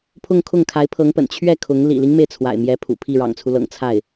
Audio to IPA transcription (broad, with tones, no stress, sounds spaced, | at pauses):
pʰ ʊ˥˧ ŋ kʰ ʊ˥˩ ŋ kʰ a˧˥ ɪ̯ pʰ ɤ˧˥ ŋ p ə̰˨˩ n t͡ɕʰ ɥ ɛ˥˩ kʰ ʊ˧˥ ŋ l ḭ˨˩ l i˦ ŋ m e˩ ɪ̯ t͡sʰ w a̰˨˩ ɪ̯ m j ɛ˧˥ pʰ ṵ˨˩ pʰ i˥˩ ɻ ɑ̰˨˩ ŋ t͡sʰ u˦ l ɤ̰˨˩ ŋ t͡sʰ a˥˩ ɪ̯